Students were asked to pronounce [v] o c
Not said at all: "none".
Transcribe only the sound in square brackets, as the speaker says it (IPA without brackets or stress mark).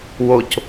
w